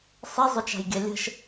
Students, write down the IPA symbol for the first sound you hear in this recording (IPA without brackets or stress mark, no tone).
sˤ